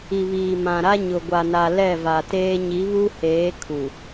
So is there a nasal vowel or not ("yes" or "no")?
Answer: yes